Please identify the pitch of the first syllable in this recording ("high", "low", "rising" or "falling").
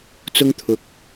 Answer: high